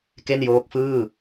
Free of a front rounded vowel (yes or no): yes